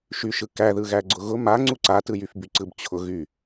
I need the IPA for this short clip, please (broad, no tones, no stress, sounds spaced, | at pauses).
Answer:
ʃ y ʃ ɯ k æ ð ɯ ɣ æ ɡ͡ǀ ʊ ɣ ʊ m a ŋ͡ǀ u ǀ a t ɯ j y f b y ǀ ɯ b t͡ɕʰ ʊ ɣ y